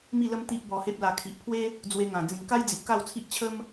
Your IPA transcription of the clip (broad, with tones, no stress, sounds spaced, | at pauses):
m i˥˧ l ə˦ m t̪ i˦ ʔ b ɔ˧ h e˦ p̚ l a˧ kʰ i˨ ʔ pʰ w e˦ | d͡z w e˧ ŋ ã˨˩ d͡z ĩ˨˩ ŋ k a˦ j d͡z i˨ ʔ k a˥˧ w t͡sʰ i˦ ʔ t͡ɕʰ ə˦ m